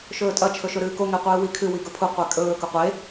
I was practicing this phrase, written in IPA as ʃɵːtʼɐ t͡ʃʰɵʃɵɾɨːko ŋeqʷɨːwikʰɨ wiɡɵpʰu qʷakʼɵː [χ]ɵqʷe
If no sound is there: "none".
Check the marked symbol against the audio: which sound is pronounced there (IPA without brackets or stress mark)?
k